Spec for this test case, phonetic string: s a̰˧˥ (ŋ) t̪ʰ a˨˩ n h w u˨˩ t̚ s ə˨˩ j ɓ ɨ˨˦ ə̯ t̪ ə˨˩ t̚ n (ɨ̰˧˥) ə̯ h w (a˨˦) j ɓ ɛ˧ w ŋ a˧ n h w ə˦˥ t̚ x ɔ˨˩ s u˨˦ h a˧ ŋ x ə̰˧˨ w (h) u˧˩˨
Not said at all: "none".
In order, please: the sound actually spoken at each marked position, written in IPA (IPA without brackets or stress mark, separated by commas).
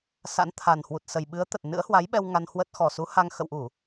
n, ɨ̰˧˥, a˨˦, ʔ